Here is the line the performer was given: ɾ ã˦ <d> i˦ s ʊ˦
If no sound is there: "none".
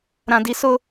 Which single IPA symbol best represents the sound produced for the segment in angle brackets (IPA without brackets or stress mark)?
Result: d